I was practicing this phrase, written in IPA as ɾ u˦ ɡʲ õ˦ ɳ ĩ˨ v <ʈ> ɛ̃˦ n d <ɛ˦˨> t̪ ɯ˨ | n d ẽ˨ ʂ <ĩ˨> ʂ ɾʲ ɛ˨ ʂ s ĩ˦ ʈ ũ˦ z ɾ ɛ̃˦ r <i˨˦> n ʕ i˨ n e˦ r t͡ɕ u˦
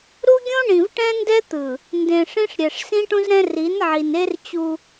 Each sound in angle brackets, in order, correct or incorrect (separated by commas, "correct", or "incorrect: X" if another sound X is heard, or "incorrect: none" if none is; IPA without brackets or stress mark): correct, incorrect: ɛ˦, incorrect: ĩ˦, correct